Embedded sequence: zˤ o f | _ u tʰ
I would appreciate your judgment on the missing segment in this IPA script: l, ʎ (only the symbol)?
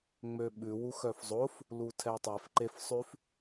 l